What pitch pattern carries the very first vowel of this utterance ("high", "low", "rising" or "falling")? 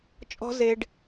high